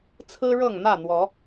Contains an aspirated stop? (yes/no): yes